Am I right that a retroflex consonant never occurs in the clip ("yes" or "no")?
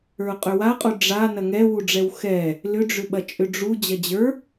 no